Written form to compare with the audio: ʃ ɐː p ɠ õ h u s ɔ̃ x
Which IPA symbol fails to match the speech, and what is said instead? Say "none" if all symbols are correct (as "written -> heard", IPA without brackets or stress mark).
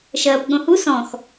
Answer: none